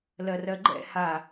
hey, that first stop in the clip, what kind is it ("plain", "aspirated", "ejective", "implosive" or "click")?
click